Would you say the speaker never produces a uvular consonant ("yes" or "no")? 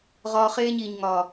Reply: no